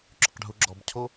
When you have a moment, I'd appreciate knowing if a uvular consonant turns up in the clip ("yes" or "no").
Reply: yes